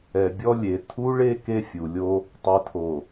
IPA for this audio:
ɛ˨ bʲ ɔ˦ lʲ e˨ tʰ u˦ ɭ e˦ k e˦ fʲ u˨ lʲ o˦ | tˤ ɛ˨ tʰ o˨

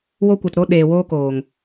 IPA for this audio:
w o˦ kʷ ɨ˨ t ɾ o˦ ɗ eː˨ w oː˧ k oː˨ ŋ

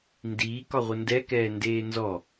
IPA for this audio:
n d iː k ɒ ʁʷ ə n d ɛ k ɛː n d eː n z ɔ

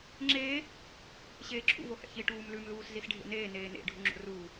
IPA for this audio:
ŋ͡ǁ eː | ɕ eː ǁʰ ṵ v o h ɛ̰ ç i ʈ uː m l ʉ m l uː s z i s ɖʱ ḛ n eː n eː n ḛ ɖʱ u ŋ͡ǁ o̰ r uː

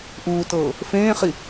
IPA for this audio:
ʔ uː t ɤː | f ẽː χ i

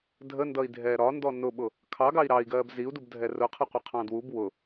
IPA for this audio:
dʱ ə n d ʌ i̯ dʱ ɛː ɾ ɒ n d ɔ n ʊ ɓ ʊ | kʰ ɑ ɡ ɑ i̯ ɾ ɑ i̯ ɡ ɜː b z i u̯ d u b dʱ ɛ r ʊ qʰ ʌ qʷ ə qʰ ɑ̃ d w u b w ʊ

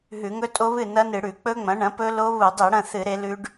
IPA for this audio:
ɦ ʉ˧˩˧ ŋ ɵ˦˥ tʼ o˦˥ β ɨ˥˨ n ɐ˦˥ n ɨ˧˩˧ ɽ ʉ˧˩˧ k͡p ɵ˦˥ ŋ͡m ɐ̃˩˥ ɳ ɐ̃˩˥ p ɵ˦˥ l o˦˥ β u˧˩˧ dˤ i˧˩˧ ɽ ɐ̃˥˨ θ ɨ˧˩˧ ɾ e˩˥ l ʉ˦˥ ɖ

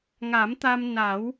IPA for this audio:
ŋ a˨˩˦ m t̪ a˧ m n a˨˩˦ w

